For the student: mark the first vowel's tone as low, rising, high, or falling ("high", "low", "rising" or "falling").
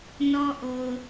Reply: high